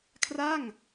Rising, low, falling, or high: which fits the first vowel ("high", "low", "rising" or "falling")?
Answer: falling